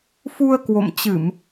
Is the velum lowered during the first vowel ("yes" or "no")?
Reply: no